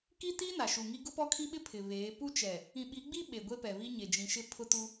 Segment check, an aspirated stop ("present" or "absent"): present